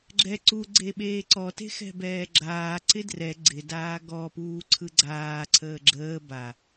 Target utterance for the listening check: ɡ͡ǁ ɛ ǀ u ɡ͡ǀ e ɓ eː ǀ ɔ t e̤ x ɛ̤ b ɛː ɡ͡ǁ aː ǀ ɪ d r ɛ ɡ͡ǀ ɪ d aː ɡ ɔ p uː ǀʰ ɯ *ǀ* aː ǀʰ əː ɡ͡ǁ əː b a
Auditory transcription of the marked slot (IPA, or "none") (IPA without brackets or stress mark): ɡ͡ǀ